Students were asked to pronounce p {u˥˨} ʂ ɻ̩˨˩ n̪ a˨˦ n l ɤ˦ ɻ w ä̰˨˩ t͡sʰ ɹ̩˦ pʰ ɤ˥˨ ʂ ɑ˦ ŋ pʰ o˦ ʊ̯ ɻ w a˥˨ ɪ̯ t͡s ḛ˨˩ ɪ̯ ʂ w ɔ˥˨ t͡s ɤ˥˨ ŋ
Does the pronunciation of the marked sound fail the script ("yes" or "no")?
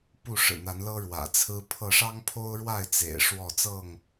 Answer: no